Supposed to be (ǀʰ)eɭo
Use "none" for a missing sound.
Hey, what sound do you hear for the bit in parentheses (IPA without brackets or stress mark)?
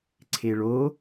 ǀʰ